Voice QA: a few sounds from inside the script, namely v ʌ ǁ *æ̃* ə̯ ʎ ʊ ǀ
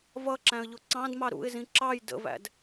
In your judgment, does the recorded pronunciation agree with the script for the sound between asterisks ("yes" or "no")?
yes